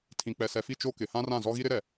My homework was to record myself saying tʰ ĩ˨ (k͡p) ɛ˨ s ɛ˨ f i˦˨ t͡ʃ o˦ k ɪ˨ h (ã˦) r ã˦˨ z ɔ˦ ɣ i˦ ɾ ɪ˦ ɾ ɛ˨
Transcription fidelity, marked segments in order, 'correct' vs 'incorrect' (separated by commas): correct, correct